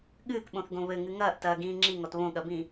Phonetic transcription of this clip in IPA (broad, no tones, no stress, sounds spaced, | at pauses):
ɠ ɨː k ɓ õ θ ɡ õ β ɘ ŋ ɨ ŋ ɐː ʔ t ɐː ɡ ĩː ŋ͡ǁ i ŋ ɔ t β õ ɠ ɐ b ĩ